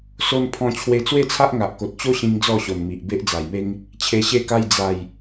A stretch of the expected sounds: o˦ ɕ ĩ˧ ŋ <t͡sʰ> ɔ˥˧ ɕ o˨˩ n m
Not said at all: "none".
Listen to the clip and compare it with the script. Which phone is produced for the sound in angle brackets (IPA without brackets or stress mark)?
d͡z